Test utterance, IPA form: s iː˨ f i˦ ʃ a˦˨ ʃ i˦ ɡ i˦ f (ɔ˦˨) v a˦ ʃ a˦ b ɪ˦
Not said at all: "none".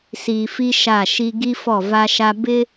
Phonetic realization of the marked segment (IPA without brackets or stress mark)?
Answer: ɔ˦˨